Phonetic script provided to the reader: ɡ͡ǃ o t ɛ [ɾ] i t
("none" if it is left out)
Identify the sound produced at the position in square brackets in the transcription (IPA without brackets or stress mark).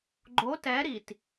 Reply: ɾ